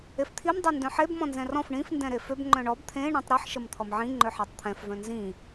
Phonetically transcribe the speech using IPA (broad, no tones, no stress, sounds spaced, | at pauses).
e f t̪ʰ i m dˤ e n d œ̃ ħ e b m ɔ̃ n z ɛ̃ r ɔ̃ f ɳ ĩ f n d ɛ̃ ɾ e f ø b ŋ͡ǃ œ̃ ɳ ɔ b t̪ʰ ẽ ɳ ɔ̃ tˤ ɾ i ħ ʃ ə m t̪ʰ ɔ m ʕ ĩ ŋ͡ǃ ø ħ e tˤ t̪ʰ ɛ̃ f v œ̃ n z ĩ